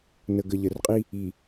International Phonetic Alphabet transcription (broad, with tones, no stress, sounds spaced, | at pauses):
n ə˨ ɡ ə˨ ʎ ə˨ r qʼ i˦ | i˨